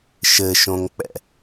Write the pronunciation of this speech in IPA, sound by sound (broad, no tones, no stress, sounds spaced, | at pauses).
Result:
ʃ ɘ ʃ õ ŋ k͡p ɛ̰